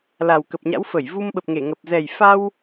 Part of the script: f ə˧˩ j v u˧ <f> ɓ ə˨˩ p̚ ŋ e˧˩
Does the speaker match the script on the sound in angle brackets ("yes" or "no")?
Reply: no